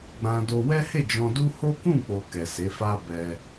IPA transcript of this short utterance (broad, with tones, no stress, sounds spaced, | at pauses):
ɡ͡b ã˧ d o˧ w ɛ˦ h e˦˨ d͡ʒ ɔ̃˧ d u˦ h o˦ k ũ˦˨ k͡p o˨ k ɛ˨ s e˨˦ f a˦ b ɛ˧